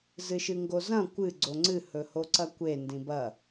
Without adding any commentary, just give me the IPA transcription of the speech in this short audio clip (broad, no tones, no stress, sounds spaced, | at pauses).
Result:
z ɨ ʃ ɨ ŋ ɡ o z ɐ̃ kʷ ɨ ɡ͡ǀ o ŋ͡ǀ ɨ h ɵ h o ǀ ɐ kʷ e n d ĩ b ɐ